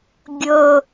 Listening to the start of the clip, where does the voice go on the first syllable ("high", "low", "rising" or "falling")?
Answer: low